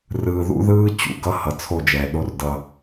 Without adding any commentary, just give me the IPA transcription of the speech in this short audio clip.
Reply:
rɯː˨ðṵ˦ðɯː˦ t͡ɕṵ˨ɡʌ˦ hʌ˨t͡sʰo˦˨d͡ʒɛː˨ɗo˦r dʌ˦

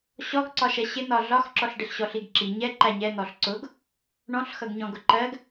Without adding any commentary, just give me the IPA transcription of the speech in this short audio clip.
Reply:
ɕɔɡǀɒʃɛ ɕɪ n̪ɒɮɒxǁɔɬ ɖɪɬɕɔɬiɡǁi ɲɛ ǃæɲɛ n̪ɔɬǀʊɡ | ɳɔ̃ɬxʌɡɲɔ̃ ɡʊǃɜɡ

